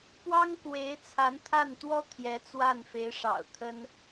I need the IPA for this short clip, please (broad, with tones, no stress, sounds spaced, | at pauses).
p w ɑ˥ ŋ k w e˧˥ ɪ̯ t͡sʰ a˧˥ n t̪ʰ a˥˩ n t̪ w ɔ˥ t̪ʰ j ɛ˧˥ t͡s w a˥˩ n f e˧˥ ɪ̯ ʂ ɑ̰˨˩ ʊ̯ t̪ʰ ə˥ n